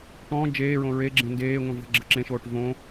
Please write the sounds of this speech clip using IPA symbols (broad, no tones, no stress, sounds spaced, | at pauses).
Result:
ʈ ɔ̃ː d͡ʒ eː ɹ õ ɹ e ɡ͡ǁ ẽ n d eː ŋʷ ẽ v ə̤ ɡ͡ǁ ə̤ ǁ ẽ ʃ oː ʈ v õ